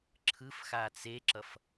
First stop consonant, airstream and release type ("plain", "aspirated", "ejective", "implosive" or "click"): click